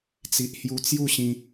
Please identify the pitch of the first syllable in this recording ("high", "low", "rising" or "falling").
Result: low